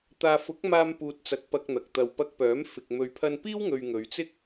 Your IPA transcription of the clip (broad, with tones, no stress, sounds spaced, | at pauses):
t̪ aː˨ f ʊ˨˥ k̚ m aː˧ m p uː˨ t̚ t͡s ɐ˨ k̚ p ɐ˨ k̚ n̪ ɐ˨ k̚ t̪ ɐ˧ w p ɐ˧ k̚ p œː˨˥ m f ɪ˨ k̚ m ɵ˨ ɥ pʰ ɐ˧ n p iː˥ w ŋ ɵ˨ ɥ ŋ ɵ˨˧ ɥ t͡s ɪ˥ k̚